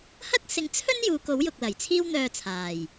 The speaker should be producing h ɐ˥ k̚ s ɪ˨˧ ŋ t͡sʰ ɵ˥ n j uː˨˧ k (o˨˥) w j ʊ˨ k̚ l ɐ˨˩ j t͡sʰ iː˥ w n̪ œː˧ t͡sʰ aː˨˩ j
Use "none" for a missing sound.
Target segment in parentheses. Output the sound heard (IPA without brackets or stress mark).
o˨˥